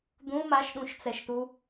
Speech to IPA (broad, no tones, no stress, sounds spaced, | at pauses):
d̪ ũ m a ʃ ɗ ũ ʃ t͡s ɛ ʃ t u